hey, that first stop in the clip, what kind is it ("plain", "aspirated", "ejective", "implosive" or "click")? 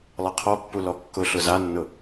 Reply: aspirated